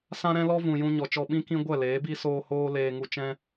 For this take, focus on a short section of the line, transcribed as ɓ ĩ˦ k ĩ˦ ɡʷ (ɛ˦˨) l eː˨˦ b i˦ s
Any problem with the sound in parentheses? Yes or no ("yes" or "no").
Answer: no